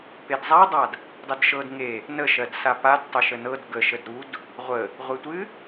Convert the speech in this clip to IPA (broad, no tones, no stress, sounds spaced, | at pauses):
p e d zˤ a dˤ a d | dˤ ə d ʃ ɤ d ŋ e | n ə ʃ ɜ d s a p a d tˤ ɘ ʃ ə n ɤ d ɡ ə ʃ ə d ɾ u d | ʁʷ ə | ʁʷ e tʷ ɨ